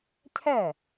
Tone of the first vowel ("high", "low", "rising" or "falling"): falling